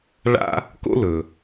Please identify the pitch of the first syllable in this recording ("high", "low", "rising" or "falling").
high